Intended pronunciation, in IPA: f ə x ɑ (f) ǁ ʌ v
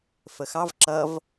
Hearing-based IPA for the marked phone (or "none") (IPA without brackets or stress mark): v